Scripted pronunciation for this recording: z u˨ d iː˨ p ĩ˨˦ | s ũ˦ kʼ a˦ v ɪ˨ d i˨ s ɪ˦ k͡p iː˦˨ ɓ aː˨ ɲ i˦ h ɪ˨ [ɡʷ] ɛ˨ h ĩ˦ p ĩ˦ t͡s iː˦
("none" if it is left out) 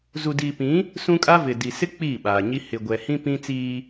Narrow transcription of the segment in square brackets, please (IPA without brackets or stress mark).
ɡʷ